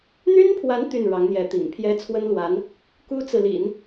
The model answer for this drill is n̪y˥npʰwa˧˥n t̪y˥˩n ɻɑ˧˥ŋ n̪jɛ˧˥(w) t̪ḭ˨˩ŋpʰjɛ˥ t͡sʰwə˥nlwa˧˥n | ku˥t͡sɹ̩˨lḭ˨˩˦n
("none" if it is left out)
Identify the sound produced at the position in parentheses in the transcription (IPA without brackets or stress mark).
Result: none